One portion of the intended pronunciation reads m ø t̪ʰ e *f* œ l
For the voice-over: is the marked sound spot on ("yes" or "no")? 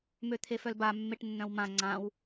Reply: yes